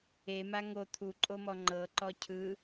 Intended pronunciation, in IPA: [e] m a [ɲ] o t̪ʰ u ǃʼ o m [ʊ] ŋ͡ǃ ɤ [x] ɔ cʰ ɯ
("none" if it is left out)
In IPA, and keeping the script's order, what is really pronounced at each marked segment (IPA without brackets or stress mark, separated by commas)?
e, ŋ, ɔ, ǃ